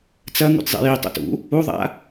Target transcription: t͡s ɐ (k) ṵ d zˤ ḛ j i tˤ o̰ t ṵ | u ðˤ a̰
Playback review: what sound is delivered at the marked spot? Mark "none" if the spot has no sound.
ŋ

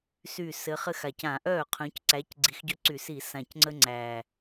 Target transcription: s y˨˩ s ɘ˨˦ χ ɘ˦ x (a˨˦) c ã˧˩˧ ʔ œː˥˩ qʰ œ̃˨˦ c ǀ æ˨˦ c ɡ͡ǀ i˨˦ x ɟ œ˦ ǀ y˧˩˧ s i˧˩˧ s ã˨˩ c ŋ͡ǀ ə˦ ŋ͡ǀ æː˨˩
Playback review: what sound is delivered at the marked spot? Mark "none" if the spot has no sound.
a˨˩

